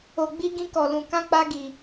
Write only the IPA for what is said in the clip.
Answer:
o˧ ɡ͡b i˦ ɡ ĩ˦ k ɔ˧ l ũ˧ k ã˦ k͡p a˦ ɡ i˧

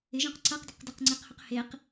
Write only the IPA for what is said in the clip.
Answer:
ɪ ʒ œ̃ q ǀ a q d ə q d ɛ q ŋ͡ǀ ɛ q h ɵ q h e q

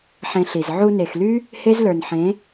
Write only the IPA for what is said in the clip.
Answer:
ħ ẽ˧ ɬ i˨ z ʕ u˧ n e˨ x l y˦ | h e˦ z l ə˞˨ n ħ ẽ˨˦

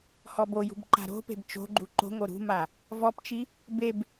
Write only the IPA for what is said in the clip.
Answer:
h ɔ b o j ṳ b ǃ a̤ ɾ o̤ p e̤ b t͡ʃ o̤ ɡ͡ǃ u ǃ o̤ ŋ o ɾ ṳ m a | v ɔ p t͡ʃ i | b e b

